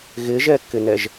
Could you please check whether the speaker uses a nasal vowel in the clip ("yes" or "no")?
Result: no